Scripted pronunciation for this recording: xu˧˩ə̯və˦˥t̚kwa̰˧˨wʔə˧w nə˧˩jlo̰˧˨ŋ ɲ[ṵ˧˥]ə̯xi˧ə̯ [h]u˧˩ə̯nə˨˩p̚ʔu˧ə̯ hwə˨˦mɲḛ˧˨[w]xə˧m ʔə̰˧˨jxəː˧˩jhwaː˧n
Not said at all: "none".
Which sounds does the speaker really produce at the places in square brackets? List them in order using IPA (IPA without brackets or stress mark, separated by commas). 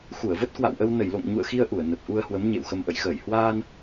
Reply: ṵ˧˨, ʔ, w